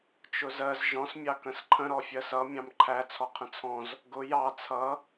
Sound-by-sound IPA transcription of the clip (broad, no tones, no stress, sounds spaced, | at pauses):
t͡ʃ ʊ z ɜ z ʒ ɔ̃ s mʲ ɑ k ə̃ s ǃʰ ə̃ ɾ ɔ fʲ ɜ s ʌ mʲ ɑ̃ m ǃʰ æ t͡sʰ ɔ qʰ ə̃ t͡sʰ ɔ̃ z | ɡ ʊ j ɑ t͡sʰ ʌ